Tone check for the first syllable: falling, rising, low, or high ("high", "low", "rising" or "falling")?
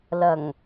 low